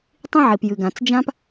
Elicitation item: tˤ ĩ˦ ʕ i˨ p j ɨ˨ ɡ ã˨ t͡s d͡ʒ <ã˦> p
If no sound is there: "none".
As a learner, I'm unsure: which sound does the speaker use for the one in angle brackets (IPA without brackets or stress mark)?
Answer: ã˦